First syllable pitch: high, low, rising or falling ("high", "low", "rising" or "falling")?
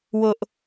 high